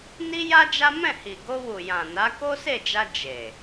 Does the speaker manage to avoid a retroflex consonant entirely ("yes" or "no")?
yes